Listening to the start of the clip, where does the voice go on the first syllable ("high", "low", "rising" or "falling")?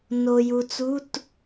low